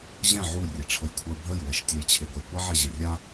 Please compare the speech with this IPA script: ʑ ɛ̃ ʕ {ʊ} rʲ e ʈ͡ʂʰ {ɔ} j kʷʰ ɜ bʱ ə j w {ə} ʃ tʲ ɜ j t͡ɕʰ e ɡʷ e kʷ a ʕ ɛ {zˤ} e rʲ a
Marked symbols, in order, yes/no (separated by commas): no, no, no, no